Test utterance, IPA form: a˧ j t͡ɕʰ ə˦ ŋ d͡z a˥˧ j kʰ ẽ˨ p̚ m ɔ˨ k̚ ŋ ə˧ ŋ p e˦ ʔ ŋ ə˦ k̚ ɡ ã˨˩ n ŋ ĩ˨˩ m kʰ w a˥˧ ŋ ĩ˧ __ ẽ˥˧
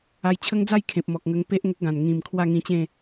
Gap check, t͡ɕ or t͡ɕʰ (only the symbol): t͡ɕ